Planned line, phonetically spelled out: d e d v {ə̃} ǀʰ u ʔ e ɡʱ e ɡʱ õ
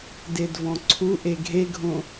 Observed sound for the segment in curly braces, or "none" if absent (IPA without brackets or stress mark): ɔ̃